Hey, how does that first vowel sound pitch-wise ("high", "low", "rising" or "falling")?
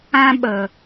high